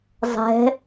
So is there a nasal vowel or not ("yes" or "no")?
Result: no